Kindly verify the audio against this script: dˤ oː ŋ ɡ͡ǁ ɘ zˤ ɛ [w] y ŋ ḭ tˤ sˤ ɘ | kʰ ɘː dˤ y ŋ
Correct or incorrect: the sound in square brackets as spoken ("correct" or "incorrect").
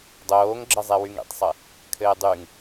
correct